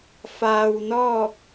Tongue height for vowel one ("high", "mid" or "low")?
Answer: low